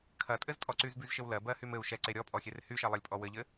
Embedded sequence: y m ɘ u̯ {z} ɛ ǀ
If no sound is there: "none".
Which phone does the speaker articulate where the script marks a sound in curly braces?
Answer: ʃ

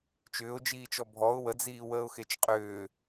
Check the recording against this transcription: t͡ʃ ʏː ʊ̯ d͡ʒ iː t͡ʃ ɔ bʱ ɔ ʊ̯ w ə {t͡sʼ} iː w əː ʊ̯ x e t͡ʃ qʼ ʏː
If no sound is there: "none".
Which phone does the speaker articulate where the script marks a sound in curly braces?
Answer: d͡z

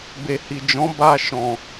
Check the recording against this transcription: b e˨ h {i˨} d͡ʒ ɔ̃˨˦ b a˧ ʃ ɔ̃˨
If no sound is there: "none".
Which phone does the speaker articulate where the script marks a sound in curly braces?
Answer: i˨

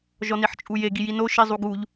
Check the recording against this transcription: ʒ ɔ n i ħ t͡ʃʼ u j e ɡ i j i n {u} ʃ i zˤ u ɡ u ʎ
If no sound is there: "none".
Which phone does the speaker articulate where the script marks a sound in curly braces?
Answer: o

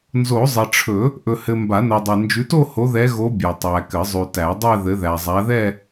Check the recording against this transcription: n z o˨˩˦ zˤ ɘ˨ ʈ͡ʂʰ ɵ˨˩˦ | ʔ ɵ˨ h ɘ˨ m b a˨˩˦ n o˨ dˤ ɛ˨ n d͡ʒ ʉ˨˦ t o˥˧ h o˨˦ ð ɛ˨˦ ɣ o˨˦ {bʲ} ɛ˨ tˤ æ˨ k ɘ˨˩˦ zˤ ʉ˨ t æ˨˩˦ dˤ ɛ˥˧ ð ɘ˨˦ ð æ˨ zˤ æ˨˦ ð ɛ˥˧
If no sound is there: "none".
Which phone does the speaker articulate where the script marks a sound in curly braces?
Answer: bʲ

